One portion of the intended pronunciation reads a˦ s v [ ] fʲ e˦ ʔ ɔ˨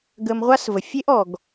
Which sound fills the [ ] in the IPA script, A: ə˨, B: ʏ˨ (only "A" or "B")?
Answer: A